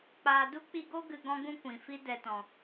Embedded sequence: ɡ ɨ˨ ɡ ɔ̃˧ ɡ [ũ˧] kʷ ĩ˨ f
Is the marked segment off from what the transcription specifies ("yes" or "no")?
no